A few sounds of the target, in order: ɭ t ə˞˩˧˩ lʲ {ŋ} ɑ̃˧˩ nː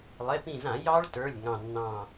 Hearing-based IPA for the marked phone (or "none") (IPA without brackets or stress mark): ŋ